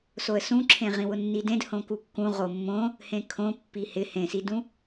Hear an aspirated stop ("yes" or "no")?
yes